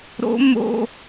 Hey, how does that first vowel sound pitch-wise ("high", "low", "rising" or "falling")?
high